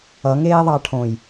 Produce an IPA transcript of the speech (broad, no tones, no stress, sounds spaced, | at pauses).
ʌ ŋ eː ðˤ ɑ ʈʰ õ j